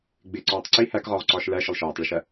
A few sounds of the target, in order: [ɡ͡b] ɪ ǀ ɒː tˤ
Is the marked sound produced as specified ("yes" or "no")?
yes